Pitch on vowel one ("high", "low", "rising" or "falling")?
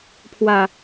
low